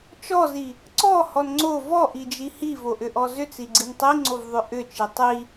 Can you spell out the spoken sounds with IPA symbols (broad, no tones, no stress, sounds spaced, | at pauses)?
t͡ʃ ɔ z i | ǀ ɔ h ɔ n ŋ͡ǀ o v ɔ ʔ i d͡ʒ i h i v o ʔ ʏ ʔ ɔ z ʏ t͡s i ɡ͡ǀ i n tˤ i ŋ͡ǀ o v ðˤ ʏ ʔ ʏ t͡ʃ i tˤ i